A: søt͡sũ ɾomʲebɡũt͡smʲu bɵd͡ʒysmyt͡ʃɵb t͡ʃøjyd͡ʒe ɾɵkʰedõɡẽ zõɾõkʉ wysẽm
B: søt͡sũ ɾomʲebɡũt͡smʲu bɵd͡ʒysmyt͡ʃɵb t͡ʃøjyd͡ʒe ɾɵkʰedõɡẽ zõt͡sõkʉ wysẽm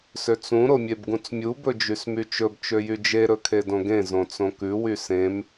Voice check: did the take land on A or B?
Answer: B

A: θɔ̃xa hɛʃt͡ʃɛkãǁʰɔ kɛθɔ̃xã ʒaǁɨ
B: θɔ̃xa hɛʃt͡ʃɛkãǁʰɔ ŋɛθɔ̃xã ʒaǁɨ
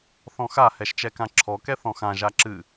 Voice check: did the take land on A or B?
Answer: A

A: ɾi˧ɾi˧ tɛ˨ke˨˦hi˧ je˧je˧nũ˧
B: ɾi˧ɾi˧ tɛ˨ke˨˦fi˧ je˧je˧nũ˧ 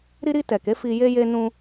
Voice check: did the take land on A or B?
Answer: B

